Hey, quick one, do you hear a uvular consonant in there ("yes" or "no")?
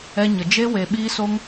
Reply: no